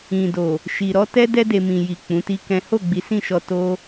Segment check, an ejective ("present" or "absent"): absent